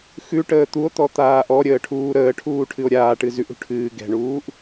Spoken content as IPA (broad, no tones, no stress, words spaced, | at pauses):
xʉ ʈəːt̪uo̯t̪ɔ t̪aːʔɔɾʲəː ʈʰuːɾəːʈʰuː ʈʰɨo̯ɾʲaːʈɨ zʉʔṳ ʈʰɨː ɡɛ̤ɳuːʔ